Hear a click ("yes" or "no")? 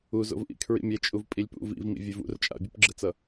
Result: yes